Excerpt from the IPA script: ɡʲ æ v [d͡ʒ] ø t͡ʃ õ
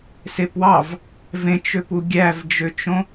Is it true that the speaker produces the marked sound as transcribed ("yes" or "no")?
yes